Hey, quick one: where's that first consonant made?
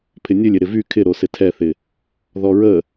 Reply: lips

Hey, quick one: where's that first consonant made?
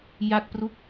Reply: palate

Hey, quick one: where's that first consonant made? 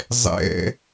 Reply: tongue tip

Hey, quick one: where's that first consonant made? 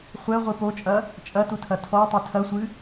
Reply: uvula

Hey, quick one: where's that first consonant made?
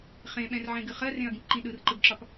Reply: uvula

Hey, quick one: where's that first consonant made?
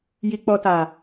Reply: palate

